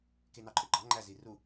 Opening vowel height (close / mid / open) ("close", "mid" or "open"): mid